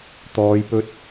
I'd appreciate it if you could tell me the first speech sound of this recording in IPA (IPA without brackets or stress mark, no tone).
t̪